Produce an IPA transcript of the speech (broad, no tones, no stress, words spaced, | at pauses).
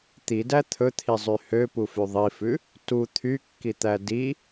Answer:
t̪idæ t̪ʰɵt̪ʰizˤy høpufy ðˤifʉ | tu t̪ʰykːit̪æ di